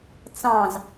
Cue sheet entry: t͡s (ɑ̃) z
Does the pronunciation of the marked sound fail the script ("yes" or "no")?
no